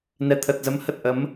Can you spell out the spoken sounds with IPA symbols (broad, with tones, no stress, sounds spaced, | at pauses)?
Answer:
n ɛ˨˩ t̪ʰ ə˨˩ t̚ z ə˨˦ m h ə˨˩ t̚ ʔ ə˨˦ m